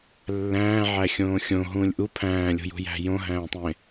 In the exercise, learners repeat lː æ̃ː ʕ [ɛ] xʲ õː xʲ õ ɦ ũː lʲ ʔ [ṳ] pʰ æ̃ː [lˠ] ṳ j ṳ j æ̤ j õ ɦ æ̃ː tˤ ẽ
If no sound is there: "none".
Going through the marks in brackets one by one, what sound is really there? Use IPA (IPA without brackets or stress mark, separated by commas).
æ, u, lʲ